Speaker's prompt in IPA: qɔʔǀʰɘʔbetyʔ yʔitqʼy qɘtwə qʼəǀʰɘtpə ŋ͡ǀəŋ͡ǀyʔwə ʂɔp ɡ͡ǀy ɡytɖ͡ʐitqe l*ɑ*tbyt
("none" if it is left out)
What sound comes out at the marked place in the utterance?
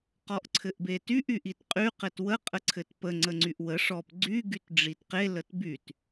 ə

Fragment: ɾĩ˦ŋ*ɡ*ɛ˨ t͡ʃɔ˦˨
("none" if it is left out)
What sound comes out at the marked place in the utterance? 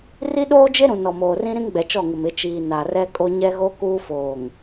ɡ͡b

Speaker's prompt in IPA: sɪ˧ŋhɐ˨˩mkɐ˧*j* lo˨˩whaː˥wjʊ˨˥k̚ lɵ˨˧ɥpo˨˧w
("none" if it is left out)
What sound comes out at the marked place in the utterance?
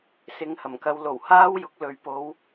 w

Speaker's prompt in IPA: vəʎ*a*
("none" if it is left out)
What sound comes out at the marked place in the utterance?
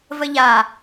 a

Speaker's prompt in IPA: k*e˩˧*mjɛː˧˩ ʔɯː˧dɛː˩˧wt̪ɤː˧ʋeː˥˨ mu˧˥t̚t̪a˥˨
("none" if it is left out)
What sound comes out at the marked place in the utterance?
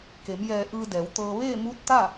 e˩˧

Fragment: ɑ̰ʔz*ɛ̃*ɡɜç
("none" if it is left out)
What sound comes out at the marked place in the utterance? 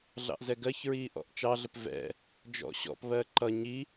ɛ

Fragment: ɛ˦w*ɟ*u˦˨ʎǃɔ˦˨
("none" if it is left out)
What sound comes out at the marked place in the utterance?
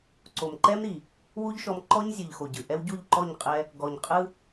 ɟ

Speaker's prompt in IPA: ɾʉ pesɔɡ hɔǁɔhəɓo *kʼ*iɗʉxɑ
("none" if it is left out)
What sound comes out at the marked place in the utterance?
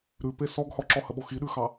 x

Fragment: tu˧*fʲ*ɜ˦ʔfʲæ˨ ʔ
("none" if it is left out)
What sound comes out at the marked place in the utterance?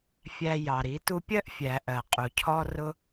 pʲ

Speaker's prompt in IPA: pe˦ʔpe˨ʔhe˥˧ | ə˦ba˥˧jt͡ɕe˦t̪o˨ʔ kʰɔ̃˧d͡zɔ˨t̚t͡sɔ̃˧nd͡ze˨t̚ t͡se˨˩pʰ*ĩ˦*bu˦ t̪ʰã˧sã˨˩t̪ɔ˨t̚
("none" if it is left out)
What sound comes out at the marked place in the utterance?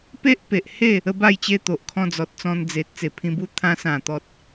ĩ˧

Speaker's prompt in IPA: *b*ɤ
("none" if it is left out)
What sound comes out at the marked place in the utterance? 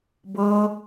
b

